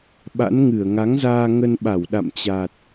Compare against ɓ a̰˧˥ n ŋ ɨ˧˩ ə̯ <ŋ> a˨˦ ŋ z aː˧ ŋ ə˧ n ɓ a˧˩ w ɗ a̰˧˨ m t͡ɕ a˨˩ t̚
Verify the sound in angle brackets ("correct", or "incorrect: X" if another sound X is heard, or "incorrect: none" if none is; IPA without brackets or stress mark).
correct